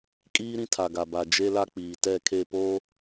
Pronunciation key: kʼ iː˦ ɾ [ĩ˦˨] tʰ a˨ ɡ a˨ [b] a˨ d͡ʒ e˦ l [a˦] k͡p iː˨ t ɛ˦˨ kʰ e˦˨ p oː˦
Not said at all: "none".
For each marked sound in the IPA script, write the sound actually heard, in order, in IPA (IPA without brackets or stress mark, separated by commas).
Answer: ĩ˦, b, a˦